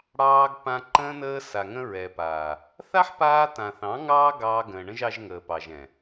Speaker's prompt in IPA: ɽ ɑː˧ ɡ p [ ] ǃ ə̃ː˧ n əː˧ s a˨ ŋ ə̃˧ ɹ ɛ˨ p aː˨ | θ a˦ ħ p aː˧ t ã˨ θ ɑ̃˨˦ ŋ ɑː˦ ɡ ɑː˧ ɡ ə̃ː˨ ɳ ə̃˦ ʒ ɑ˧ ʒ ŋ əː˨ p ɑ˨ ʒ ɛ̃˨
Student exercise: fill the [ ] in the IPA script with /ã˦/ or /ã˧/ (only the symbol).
ã˧